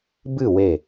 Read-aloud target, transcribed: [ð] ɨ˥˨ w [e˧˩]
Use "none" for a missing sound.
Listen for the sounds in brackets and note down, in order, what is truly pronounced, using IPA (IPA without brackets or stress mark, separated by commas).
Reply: b, e˧˩